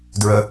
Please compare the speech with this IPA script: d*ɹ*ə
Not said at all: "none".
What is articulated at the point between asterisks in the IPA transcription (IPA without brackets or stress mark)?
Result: ɹ